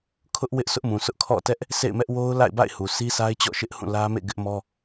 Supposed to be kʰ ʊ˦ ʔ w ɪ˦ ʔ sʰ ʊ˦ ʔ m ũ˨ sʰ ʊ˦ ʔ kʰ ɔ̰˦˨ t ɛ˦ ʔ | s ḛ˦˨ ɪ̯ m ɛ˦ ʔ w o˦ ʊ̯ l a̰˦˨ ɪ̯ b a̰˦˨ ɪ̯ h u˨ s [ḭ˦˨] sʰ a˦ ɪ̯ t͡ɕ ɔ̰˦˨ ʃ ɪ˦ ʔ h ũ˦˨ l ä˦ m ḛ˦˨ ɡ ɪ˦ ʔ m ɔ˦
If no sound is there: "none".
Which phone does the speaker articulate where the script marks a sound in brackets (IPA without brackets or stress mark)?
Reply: i˦